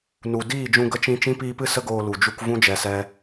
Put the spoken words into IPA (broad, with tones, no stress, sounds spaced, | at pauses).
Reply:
n u˨ d iː˦˨ d͡ʒ ũ˧ ɡ ə˧ t͡ʃ ĩ˧ t͡ʃ ĩ˦ p iː˧ p ɨ˦˨ s ə˦ ɡ oː˧ l u˨ d͡ʒ u˧ k v ũ˦ d͡ʒ ɛ˧ s ɛ˦